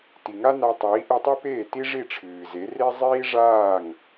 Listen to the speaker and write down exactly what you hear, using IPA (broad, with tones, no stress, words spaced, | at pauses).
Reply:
ti˩ŋa˥na˧tˤiː˩˥ ʔɨ˧tˤi˥peː˥˩ ti˥ʐi˥˩ʈ͡ʂʰɨː˩ze˩˥ re˥zˤiː˥ʐaː˥˩ŋ